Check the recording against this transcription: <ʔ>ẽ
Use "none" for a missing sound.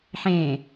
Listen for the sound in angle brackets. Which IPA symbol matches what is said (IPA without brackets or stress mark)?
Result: ħ